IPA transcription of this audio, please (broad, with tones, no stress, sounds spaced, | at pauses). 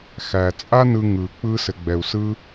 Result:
x æ˧ t͡sʼ a˦ n ɯ˧ ŋ ɯ˨ k͡p ɯ˦ s ɘ˧ ɡ͡b ɛ˧ u̯ s ɯ˦